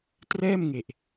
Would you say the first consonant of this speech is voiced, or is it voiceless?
voiceless